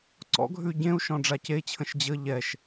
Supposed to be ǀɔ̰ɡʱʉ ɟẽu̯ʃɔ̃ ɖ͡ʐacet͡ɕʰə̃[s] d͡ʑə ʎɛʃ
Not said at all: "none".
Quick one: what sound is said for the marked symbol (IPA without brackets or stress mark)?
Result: ʃ